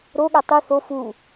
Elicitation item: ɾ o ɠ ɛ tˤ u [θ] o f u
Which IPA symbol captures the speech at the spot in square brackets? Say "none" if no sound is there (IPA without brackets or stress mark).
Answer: θ